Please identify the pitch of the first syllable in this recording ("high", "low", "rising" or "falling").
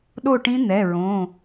falling